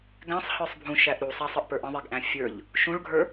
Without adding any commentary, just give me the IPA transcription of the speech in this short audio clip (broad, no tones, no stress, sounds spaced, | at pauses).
ɡ æ̃ sˤ h ə˞ sˤ bʱ ũ ʃ æ ʔ ɾ u sˤ a sˤ ə ʔ p ə˞ ʔ ə̃ ðˤ e ɡ ʔ æ̃ fʲ ə˞ ʎ | ʃ ũ ɭ ɡʱ ə˞